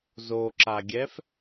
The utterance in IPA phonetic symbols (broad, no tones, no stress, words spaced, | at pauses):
zoǁaɡʲɛf